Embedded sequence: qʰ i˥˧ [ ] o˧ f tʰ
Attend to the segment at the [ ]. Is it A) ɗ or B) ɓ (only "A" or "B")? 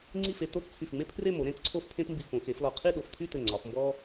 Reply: A